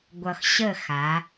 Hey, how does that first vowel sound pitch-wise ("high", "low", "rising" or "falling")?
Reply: low